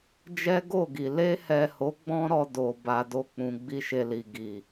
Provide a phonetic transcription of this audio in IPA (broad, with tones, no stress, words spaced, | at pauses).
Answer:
d͡ʒɛ˦ɡo˦˨ɡi˨ le˧hɛ˨ho˨˦ ɡ͡bɔ̃˦ɾɔ˧ do˨ ba˧do˦k͡pũ˧ ɡ͡bi˦ʃe˧li˨ ɡi˨